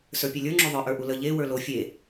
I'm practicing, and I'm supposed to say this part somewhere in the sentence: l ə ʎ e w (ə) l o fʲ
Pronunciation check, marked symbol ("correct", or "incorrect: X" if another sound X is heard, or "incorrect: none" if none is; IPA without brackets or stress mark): incorrect: ə˞